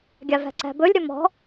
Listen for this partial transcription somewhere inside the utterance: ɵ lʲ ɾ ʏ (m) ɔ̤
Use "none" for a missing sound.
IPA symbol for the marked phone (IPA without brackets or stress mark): m